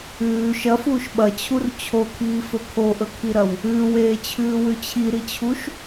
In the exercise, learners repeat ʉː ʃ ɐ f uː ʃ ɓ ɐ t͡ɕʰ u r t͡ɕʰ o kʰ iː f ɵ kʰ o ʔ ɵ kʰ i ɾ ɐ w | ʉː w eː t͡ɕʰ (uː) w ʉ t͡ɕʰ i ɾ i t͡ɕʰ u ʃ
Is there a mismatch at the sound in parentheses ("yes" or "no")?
yes